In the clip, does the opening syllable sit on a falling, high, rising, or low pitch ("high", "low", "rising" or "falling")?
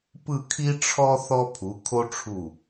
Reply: falling